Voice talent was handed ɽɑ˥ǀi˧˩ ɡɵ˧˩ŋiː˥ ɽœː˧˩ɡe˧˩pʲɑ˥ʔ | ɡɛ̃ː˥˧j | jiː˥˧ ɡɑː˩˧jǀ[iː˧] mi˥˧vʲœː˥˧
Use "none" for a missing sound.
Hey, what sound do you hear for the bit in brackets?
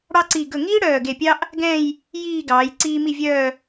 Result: iː˧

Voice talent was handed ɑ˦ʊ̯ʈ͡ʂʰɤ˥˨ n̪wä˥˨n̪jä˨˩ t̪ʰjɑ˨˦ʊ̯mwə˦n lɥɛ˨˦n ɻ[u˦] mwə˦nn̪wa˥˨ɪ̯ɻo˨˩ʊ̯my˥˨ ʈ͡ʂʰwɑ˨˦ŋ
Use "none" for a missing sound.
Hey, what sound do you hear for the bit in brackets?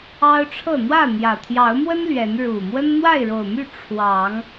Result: u˨˩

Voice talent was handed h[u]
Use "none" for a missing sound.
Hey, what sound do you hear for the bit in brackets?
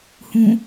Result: ũ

